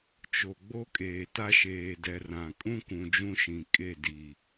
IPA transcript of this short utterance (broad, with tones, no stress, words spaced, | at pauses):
t͡ʃo˨ɡ͡bo˦ kʼeː˨ta˦ʃeː˨dɛ˨ rã˨ kʼũ˦kũ˨ d͡ʒũ˦ʃĩ˨kʼe˦˨di˨